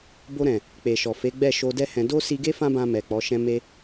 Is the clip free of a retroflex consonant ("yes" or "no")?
yes